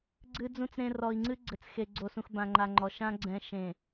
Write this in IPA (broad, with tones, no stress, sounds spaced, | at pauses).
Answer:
ɡ͡ǀ ɨ˨ d͡z ũ˨ t͡s ɾ ẽ˨ r ɔ˨ i̯ ŋ͡ǀ ɨ˦ ɡ͡ǀ ɘ˨ t͡s x e˨ ɡ͡ǀ o˨ s ũ˨ x b ã˨ ŋ͡ǃ a˨ ŋ͡ǃ ɔ˨ ʃ ã˦ ɡ͡ǀ ɛ̃˨ ʃ ẽ˨